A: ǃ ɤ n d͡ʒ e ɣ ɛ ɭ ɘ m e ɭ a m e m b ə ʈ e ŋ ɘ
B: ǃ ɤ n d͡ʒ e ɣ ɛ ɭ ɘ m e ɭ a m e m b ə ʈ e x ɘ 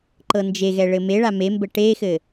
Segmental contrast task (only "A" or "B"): B